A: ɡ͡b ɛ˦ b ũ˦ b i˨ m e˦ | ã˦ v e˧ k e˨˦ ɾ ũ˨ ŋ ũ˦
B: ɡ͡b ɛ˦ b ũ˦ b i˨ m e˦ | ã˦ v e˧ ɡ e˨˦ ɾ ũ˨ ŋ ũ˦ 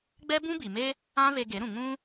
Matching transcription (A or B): B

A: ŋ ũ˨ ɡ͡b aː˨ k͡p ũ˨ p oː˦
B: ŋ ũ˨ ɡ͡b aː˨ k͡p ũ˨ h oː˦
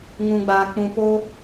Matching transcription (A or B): A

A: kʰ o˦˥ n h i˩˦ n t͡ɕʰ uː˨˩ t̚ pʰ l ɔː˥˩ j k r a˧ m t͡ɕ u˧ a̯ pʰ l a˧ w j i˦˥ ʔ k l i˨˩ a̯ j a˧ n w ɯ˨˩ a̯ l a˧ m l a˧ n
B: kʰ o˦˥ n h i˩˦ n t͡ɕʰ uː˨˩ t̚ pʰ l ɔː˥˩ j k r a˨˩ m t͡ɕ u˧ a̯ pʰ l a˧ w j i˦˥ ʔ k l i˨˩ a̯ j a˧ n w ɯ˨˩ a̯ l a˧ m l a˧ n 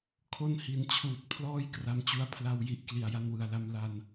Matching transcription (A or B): A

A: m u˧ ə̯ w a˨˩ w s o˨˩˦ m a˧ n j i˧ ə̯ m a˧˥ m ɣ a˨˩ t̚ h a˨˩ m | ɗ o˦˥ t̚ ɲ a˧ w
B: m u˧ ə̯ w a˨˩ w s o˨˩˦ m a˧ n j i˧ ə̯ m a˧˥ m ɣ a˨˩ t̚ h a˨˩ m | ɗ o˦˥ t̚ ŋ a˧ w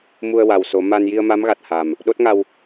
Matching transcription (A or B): B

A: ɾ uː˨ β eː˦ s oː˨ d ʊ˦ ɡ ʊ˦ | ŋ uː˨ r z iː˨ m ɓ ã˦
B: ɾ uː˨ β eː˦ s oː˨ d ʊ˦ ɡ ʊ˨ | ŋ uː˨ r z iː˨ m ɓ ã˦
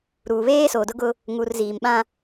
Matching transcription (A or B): A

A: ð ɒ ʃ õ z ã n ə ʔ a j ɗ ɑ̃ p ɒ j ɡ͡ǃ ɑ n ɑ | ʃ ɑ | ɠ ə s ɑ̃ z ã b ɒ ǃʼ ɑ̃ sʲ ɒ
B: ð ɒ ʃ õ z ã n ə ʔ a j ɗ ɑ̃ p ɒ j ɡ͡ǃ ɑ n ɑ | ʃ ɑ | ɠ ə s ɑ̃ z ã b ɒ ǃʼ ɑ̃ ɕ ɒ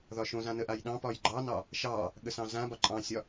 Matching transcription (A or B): A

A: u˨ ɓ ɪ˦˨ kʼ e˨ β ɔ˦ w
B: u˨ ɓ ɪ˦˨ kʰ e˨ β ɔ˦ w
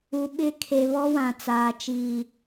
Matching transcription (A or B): B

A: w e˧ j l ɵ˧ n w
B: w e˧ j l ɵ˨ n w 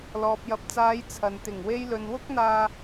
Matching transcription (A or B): B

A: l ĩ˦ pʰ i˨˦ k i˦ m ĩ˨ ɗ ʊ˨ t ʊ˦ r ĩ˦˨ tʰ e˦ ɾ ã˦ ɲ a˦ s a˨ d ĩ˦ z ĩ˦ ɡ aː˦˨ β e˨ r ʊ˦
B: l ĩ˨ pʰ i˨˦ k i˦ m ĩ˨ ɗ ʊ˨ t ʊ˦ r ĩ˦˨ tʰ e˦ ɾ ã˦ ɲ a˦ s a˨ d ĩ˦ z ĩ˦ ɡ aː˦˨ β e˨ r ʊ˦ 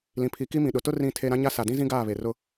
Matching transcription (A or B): B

